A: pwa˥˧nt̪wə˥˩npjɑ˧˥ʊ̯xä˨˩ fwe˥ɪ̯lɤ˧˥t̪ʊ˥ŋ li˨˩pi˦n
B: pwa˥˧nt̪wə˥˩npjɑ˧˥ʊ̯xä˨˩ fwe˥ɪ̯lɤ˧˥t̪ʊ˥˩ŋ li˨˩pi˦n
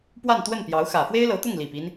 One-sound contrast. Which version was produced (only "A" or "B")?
B